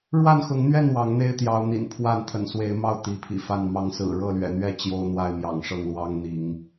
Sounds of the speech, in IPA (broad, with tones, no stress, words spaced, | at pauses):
ɻwa˥˨nxʊ˨˦ŋn̪ɥɛ˥˨n wɑ˨˦ŋn̪e˦ɪ̯ t̪jɑ˨˦ʊ̯n̪ḭ˨˩n pʰwa˥˨nt̪ʰə̰˨˩nswe˨˦ɪ̯mɑ˥˨ʊ̯ t̪i˨˦pʰḭ˨˩ fa˥˨nmɑ˦ŋ sɹ̩˨˩ɻɤ˥˨lɥɛ̰˨˩n̪ɥɛ˥˨ t͡ɕjo˦ʊ̯n̪wa˥˨ɪ̯mjɑ̰˨˩ŋ ʂɤ˥˨ŋlwɑ˦ŋ n̪i˨˦ŋ